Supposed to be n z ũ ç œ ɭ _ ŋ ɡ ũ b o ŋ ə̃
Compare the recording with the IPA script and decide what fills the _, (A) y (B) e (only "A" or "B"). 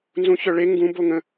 B